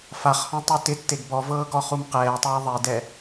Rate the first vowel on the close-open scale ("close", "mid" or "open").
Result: open